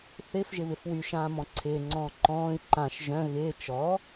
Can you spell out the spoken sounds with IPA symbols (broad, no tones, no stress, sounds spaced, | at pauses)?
θ ɪ f ʒ ɪ β ɪ f w y ʃ ãː m ɔ̃ ǀʰ ɪː ŋ͡ǀ ɔ̃ː ǃ ɔ̃ː i̯ ǃ ã ʃ ʒ œ̃ ɣ ɪː t͡ʃ ɔ